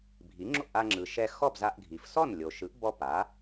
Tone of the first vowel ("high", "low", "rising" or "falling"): rising